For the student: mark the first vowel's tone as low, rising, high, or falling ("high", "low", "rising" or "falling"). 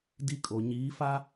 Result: high